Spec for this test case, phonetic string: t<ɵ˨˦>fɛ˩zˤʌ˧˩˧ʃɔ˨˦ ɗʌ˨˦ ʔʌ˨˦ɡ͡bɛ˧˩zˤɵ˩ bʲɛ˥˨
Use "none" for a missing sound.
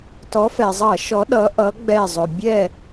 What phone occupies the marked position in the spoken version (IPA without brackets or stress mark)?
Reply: ɔ˨˦